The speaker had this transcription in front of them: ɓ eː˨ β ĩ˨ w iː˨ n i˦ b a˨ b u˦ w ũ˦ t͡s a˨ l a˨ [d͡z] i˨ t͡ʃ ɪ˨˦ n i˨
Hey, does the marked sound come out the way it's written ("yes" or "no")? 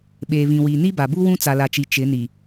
no